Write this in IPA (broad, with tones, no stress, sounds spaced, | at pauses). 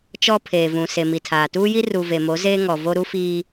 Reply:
t͡ʃ ɔ˦ pʰ eː˨ v ũ˨ s e˨ m i˨ tʰ aː˨ t uː˦ j i˦ r u˨ v e˨ m o˨˦ z eː˦ ŋ ɔ˨ v o˦ ɾ u˦ f iː˦